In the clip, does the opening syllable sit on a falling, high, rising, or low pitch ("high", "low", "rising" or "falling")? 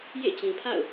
falling